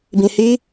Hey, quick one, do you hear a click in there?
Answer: no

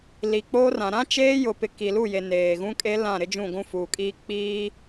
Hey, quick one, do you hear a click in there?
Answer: no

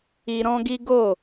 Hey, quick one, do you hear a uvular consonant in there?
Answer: no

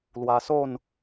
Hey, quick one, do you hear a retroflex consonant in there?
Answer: no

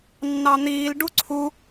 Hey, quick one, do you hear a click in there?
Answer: yes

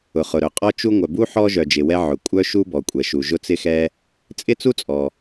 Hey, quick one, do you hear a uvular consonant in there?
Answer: yes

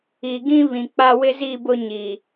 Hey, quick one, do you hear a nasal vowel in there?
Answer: yes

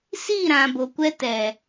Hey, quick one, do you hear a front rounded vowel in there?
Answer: no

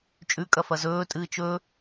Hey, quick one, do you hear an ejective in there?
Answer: yes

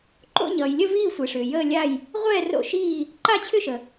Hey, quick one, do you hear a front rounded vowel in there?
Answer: yes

